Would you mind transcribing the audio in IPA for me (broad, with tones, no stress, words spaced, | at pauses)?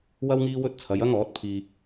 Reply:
wɐ˥w ŋiː˥wɵ˥t̚ t͡sʰɐ˨˧jɐ˥ŋɔː˨˥t̚ pʰiː˧